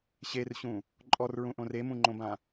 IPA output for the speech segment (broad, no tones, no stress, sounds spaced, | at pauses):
ɕ e r ɕ ũ | ǃʼ ɔ r ɹ ũ ʔ õ r e m ũ ŋ͡ǃ õ b ã